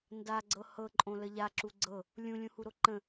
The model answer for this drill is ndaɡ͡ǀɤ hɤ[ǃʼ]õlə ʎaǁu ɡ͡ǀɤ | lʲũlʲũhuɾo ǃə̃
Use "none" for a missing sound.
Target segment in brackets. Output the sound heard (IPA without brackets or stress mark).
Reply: ǃʼ